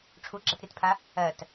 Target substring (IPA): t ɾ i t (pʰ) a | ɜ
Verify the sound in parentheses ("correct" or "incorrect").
correct